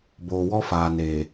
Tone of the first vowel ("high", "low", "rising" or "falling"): low